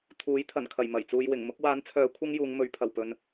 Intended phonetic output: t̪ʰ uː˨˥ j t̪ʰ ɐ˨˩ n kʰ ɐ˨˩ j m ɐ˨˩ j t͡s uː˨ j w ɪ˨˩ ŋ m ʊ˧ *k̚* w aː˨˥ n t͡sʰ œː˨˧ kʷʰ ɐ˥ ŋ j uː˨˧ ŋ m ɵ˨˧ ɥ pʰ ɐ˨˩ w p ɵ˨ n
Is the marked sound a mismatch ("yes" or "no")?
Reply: no